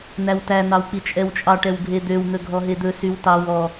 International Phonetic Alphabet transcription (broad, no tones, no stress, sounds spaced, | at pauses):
n̪ æ w t æ n̪ ɑ w k͡p i t͡ʃʼ ɛ w t͡ʃʼ ɑ ʈ ɛ w ɡʱ e d̪ ø w n̪ ɵ ɡʱ ɔ ɦ e d̪ ɵ s y w t ɑ w ɔ